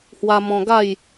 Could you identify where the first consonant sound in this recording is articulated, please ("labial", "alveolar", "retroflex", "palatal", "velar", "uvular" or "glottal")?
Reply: glottal